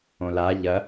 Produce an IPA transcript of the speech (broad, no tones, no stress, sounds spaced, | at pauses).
õ l a ʎ ɐ